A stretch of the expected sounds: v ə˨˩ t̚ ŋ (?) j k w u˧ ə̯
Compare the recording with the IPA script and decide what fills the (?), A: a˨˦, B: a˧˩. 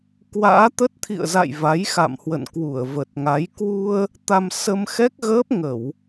A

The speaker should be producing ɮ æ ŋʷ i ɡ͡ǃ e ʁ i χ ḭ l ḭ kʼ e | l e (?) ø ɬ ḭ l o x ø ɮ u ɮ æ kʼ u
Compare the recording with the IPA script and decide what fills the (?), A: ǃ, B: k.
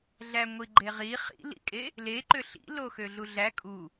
A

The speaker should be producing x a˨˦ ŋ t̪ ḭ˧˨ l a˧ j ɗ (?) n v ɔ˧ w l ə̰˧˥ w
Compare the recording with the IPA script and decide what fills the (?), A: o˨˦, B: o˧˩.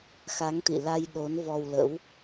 A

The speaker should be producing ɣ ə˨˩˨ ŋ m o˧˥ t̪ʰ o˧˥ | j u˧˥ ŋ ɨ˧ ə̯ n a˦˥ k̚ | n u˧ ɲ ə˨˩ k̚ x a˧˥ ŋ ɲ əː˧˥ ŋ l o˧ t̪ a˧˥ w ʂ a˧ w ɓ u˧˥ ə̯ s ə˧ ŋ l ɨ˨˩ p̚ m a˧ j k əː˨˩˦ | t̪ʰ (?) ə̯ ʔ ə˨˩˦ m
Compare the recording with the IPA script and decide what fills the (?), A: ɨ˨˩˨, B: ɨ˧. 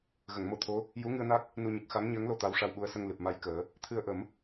B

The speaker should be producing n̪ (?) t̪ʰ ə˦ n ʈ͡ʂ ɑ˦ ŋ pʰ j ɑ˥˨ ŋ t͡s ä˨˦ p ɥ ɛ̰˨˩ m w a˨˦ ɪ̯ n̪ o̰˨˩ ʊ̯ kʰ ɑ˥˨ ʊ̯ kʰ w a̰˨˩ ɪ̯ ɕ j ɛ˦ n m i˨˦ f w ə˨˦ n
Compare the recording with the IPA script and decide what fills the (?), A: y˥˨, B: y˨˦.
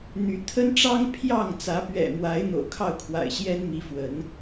B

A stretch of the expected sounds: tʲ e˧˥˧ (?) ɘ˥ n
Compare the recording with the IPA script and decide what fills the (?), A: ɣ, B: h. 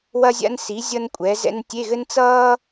A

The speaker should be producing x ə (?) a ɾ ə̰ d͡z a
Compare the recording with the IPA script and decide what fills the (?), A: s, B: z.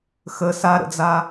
A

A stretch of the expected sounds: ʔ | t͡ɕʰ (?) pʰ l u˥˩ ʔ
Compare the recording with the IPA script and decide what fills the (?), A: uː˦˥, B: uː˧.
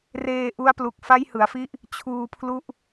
B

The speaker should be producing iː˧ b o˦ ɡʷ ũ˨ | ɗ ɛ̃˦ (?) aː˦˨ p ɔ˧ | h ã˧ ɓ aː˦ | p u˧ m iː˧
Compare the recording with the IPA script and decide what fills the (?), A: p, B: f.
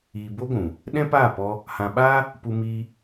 A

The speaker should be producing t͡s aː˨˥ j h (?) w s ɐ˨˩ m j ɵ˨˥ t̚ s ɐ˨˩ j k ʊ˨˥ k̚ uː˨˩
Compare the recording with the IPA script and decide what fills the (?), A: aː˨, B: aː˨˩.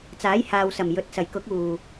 A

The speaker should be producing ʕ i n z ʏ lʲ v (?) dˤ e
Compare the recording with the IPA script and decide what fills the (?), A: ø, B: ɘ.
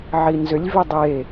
A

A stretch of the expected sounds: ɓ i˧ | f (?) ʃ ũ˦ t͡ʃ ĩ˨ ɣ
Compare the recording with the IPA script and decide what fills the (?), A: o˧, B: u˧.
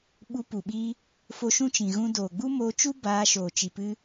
A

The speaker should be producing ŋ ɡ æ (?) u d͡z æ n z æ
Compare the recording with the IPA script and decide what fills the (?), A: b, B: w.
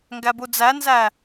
A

